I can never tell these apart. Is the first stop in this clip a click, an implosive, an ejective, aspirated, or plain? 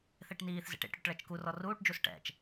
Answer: plain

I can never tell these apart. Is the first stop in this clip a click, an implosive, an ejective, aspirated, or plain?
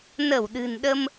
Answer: implosive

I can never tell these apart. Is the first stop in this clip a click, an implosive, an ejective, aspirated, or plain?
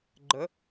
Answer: click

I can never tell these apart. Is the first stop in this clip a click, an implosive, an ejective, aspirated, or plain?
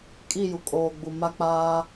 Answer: ejective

